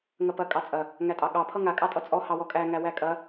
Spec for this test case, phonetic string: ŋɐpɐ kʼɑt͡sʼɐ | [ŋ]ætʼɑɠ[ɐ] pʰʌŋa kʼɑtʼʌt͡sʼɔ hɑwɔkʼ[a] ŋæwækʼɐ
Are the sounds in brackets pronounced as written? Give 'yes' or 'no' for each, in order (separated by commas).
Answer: yes, no, no